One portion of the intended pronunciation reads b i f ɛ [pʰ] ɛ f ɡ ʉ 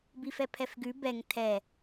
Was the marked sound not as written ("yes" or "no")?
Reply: no